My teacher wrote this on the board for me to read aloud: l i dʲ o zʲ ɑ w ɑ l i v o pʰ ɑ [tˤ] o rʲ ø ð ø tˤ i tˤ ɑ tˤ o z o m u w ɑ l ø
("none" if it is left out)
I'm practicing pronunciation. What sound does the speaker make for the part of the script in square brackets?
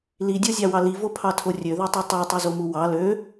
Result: tʰ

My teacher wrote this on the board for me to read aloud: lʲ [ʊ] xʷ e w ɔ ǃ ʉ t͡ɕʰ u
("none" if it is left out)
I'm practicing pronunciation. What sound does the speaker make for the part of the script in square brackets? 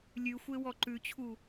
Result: ʉ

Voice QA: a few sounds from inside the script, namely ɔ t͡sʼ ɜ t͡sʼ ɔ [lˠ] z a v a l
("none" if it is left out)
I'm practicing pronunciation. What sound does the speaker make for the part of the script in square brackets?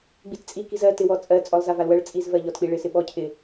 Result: lˠ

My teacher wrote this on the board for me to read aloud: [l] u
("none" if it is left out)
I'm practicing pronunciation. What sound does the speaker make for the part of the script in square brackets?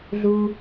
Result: ɮ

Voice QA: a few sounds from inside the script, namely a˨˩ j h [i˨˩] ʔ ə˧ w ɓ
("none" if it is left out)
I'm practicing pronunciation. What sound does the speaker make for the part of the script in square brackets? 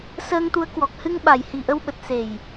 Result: i˨˩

